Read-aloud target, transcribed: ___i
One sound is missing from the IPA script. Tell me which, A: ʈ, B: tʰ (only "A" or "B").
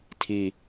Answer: B